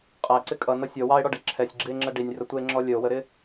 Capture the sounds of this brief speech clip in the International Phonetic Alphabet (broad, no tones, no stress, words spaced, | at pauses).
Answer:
qʼæǀɪ kʼʌnʌ sʲɔ wɑe̯ɽɔɖɛ ǁʰɛsʲɡ͡ǁie̯ŋ͡ǁɜ ɖinʲrətʷəe̯ŋ͡ǁɔ lʲəo̯wəɾɪ